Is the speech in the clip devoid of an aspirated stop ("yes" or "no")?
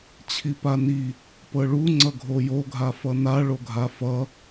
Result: no